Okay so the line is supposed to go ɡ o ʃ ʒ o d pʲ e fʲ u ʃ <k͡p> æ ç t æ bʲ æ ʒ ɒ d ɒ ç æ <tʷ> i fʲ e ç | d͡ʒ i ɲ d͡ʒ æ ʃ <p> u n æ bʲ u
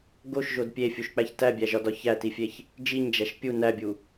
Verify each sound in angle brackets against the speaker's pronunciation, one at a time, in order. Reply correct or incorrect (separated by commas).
correct, incorrect, incorrect